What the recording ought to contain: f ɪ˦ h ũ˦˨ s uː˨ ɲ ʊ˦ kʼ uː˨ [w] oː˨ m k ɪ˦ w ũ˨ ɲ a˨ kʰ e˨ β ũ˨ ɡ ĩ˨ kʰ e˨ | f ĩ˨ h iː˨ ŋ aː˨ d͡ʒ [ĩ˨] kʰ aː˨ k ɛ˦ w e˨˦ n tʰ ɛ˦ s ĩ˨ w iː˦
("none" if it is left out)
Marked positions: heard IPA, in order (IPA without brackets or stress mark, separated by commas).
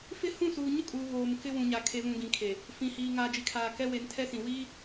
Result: β, i˨